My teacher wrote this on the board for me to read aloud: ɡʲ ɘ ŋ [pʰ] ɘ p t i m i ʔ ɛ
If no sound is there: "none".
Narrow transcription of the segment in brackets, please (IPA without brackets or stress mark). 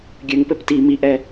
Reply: p